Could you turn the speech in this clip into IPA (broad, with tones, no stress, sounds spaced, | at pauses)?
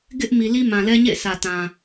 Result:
ɡ ɪ˦ ʔ m i˨ l i˦ m ã˨ l ɛ˦ ɲ ḛ˦˨ ɪ̯ sʰ ä˨ t ã˨